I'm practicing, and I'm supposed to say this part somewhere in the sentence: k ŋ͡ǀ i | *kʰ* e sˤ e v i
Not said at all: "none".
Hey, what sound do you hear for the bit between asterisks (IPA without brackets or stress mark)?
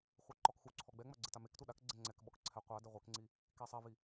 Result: k